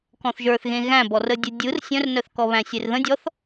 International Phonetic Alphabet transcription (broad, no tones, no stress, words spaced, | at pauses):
kɔ̃θʒə˞θɣẽ ɣæ̃bɔrədʲə dʲɯr sʲœ̃rnœθkɔ βæ̃sʲerðə̃ dʲɔθ